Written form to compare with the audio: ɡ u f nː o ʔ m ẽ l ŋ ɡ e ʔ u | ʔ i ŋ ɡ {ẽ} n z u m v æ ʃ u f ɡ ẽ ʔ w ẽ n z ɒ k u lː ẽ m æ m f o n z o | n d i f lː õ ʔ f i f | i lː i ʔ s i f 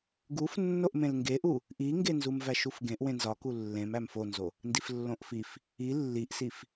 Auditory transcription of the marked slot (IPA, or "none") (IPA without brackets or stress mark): e